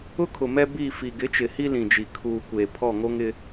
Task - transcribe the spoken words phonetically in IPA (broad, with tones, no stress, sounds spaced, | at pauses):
ʊ˦ kʰ ʊ˨ m ɛ˦ b iː˦˨ f i˨ ɡ ɪ˨˦ t͡ʃ ɪ˨ h i˦ l ĩ˨ d͡ʒ i˨ kʰ uː˨ kʷ eː˨ pʰ ɔ˦˨ ŋ o˦ ŋ ɪ˦